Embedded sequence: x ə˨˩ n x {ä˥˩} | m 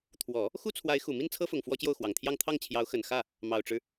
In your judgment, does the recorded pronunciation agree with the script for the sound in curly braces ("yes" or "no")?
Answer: yes